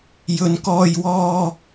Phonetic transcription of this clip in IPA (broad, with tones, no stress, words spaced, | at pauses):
jɵ˨˧nkɔː˧jwɔː˧